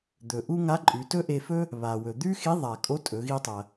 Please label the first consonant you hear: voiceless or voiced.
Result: voiced